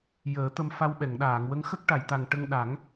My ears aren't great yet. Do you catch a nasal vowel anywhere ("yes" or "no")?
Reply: no